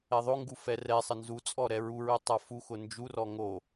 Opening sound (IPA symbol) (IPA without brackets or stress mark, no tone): ɛ